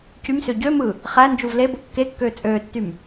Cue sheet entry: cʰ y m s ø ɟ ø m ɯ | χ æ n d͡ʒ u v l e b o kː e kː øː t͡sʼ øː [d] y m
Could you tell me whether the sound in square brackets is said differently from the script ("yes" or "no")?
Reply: yes